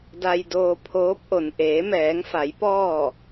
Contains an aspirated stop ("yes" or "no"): yes